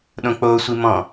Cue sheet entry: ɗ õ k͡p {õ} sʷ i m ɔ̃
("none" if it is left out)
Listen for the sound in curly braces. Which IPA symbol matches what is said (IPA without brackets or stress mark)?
o